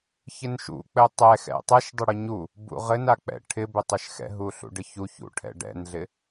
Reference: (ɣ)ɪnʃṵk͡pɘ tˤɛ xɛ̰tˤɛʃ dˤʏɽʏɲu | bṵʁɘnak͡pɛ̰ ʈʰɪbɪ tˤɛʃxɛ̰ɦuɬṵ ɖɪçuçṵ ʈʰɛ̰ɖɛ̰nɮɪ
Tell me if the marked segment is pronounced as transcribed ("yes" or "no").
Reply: no